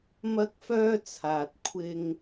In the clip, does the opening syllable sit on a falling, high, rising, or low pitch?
high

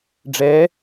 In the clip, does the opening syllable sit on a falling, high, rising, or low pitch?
rising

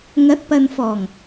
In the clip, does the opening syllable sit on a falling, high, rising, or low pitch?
rising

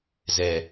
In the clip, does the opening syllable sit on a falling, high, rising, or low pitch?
low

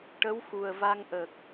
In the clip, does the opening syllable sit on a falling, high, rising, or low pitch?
rising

